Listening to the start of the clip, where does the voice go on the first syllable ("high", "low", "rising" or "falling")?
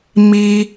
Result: low